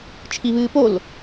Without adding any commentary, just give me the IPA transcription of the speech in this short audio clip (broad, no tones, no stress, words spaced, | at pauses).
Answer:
t͡ʃʰiβɨːpol